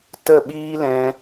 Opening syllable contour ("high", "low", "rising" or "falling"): falling